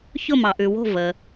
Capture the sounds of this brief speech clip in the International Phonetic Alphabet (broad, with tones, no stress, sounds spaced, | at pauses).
ç ʊ˥˨ m ɑ˨ ʔ ʉ˨ w o̤˥˨ v ə˨